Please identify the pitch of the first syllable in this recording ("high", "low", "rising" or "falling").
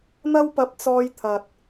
high